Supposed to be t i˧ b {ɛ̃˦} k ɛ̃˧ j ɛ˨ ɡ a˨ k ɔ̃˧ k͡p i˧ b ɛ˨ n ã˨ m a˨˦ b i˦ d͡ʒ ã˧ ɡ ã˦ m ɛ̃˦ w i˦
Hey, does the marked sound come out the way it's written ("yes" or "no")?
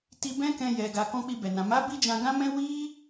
yes